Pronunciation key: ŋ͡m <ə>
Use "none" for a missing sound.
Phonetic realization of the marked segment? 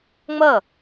ə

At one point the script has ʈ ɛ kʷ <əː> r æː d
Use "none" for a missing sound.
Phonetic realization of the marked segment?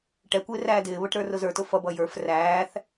ɪː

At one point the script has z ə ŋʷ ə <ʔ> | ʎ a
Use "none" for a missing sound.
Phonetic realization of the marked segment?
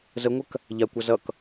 k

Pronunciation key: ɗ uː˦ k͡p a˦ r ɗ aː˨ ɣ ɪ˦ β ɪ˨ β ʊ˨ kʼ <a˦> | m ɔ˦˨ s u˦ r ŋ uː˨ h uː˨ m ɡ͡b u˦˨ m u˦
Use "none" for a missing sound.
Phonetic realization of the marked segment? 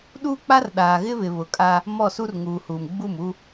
a˦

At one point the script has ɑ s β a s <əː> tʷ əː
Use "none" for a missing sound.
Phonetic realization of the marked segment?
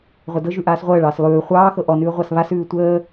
ʉː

